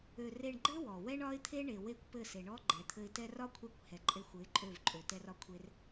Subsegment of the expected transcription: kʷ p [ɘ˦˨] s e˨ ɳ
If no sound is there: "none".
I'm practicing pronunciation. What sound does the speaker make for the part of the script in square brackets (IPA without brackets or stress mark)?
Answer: ɘ˦˨